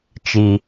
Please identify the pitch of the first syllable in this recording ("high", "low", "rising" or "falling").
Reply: low